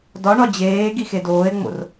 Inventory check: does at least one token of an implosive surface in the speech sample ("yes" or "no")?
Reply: no